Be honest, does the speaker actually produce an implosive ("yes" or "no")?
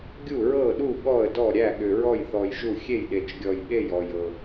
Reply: yes